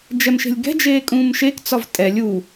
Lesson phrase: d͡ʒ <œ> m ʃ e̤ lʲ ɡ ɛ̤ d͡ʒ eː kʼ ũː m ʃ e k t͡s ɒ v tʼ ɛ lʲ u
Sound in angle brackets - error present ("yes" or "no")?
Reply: yes